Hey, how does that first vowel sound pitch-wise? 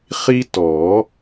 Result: high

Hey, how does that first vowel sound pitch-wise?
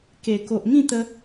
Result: low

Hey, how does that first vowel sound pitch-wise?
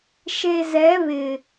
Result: low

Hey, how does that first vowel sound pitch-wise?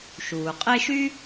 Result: low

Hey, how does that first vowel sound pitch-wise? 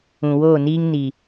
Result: low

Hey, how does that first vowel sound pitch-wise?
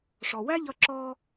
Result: low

